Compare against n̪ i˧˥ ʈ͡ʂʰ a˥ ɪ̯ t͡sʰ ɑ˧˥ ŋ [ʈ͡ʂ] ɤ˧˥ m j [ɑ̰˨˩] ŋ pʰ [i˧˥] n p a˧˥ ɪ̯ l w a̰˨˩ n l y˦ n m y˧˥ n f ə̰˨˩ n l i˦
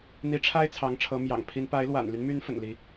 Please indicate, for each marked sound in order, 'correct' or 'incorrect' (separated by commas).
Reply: incorrect, correct, correct